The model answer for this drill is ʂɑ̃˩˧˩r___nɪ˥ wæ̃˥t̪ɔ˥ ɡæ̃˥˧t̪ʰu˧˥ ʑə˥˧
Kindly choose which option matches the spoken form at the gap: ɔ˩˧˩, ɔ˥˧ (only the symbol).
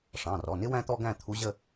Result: ɔ˩˧˩